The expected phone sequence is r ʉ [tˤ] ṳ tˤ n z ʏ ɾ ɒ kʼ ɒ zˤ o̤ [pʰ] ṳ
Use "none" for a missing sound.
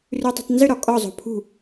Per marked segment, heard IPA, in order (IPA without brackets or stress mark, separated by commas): tˤ, pʰ